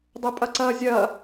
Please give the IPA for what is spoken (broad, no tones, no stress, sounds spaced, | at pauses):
dˤ e pʼ ɐ ǀ ɐː zʲ ɐː